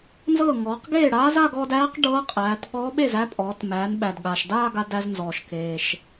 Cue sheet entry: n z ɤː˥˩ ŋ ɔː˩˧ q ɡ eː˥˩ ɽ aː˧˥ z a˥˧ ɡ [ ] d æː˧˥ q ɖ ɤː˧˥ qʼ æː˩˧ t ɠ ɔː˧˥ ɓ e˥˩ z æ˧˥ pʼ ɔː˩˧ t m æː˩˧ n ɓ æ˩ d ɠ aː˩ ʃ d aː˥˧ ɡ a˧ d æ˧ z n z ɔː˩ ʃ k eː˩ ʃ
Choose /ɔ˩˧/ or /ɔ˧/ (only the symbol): ɔ˧